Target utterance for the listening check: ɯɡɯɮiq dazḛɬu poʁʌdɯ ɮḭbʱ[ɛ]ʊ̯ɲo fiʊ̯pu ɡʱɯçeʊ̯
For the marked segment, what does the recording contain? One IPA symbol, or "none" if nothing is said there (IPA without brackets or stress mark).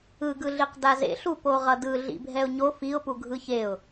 ɛ